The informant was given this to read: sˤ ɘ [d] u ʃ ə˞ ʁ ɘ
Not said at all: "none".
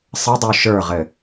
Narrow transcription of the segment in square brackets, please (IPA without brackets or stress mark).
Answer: dˤ